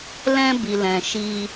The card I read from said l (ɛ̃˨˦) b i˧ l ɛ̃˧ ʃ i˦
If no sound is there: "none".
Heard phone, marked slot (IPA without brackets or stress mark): ɛ̃˦